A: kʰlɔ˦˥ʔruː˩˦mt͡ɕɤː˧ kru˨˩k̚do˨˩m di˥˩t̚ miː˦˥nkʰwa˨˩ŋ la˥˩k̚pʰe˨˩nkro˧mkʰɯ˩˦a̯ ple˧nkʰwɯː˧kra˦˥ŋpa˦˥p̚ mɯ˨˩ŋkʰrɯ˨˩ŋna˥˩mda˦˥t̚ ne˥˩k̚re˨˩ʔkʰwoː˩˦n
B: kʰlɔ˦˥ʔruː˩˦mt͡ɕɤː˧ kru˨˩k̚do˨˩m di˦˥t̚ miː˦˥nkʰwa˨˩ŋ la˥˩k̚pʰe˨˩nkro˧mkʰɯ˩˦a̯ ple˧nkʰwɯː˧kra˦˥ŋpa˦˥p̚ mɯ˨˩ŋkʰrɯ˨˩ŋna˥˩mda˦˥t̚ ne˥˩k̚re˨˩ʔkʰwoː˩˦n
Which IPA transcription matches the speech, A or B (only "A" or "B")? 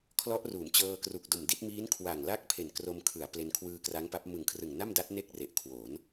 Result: A